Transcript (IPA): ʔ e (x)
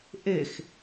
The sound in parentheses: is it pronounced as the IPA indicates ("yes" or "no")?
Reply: yes